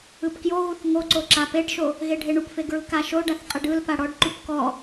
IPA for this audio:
ɯ p k j o ɣ u θ ŋ o ǀ o ǁ a p e ɖ ʃ o | ɣ e ɖʱ e ɳ u p f e ɡ ɹ ɯ k a ʃ o ɖ a θ qʼ ɯ ɖ ɯ l p a ɽ ɔ ɖ ǃ u p k ɔ

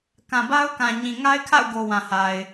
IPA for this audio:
k ã˨ b a˦ ʊ̯ k ã˨ ɲ ĩ˨ ŋ a˦ ɪ̯ kʰ a̰˦˨ ʊ̯ ɡ o˨ w ã˨ h a˨ ɪ̯

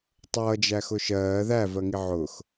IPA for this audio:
tˤ ʌː d͡ʒ æ x ʊ ʃ ɜː ð æ v ɜ ŋ i ʕ ʊ x

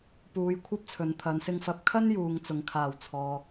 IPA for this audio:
p uː˨ j kʷʰ ɐ˥ p̚ t͡sʰ ɵ˨ n t̪ʰ ɐ˨˧ n s ɪ˧ ŋ f ɐ˨˥ p̚ kʰ ɐ˥ n j uː˨ ŋ t͡s ʊ˨ ŋ kʰ aː˨˩ w t͡sʰ ɔː˨

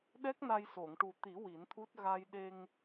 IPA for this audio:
ɗ ɛ˦˥ k̚ n a˧ j s o˨˩˨ ŋ ʈ u˨˩ t̪ i˨˩˦ w i˨˩˦ n t̪ʰ u˦˥ t̚ ɣ a˧ j ɗ e˧ ŋ

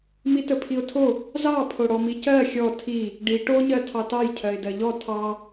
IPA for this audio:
m i t ə pʰ i ʊ̯ tʰ o | z ɑ pʰ o ɽ ɔ m i c ɜ xʲ ɔ tʰ i | ɖ i ʈ o ɲ ɜ tʰ ɑ t ɑ j cʰ ɜ ɪ̯ d ɜ ʎ ɔ tʰ ɑ

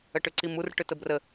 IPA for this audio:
ə ʈ ʏ ǀ i m u r ʈ ʏ t ə b r ə

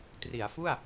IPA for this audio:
t r i˩˦ a̯ f u˥˩ a̯

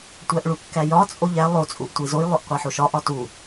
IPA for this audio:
tʷ æ ʔ ɭ u kː æ j ɒ t͡sʼ o ʎ æ lˠ o t͡sʼ u ʔ tʷ i z o j lˠ o ʔ qʷ æ ħ o ʃ ɒ ʔ ɒ t u

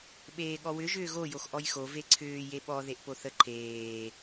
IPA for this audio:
ɓ eː ɠ ɔ w ʏ ʒ ʏː ɣ o j o x ʔ ɔ j x o v e ǀʰ ʏː j e ɓ ɔ ð e ʔ p o θ ə ǃʰ eː

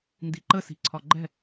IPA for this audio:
n d i ǃ ə s i̤ ǀʰ ɒ ɡ͡ǃ ɛ̤

